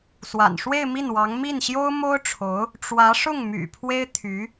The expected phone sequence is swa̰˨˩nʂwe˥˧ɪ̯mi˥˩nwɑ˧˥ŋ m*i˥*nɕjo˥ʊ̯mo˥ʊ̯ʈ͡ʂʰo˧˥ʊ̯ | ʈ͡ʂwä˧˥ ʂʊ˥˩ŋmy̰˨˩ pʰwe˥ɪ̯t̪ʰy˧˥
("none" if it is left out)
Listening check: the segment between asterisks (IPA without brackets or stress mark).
i˥˩